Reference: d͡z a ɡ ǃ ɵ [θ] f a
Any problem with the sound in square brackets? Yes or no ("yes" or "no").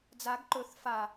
no